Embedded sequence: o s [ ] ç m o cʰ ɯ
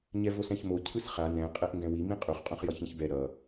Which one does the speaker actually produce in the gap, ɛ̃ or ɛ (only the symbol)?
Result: ɛ̃